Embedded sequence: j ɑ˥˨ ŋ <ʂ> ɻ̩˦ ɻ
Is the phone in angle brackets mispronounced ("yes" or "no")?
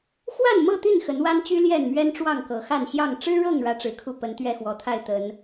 yes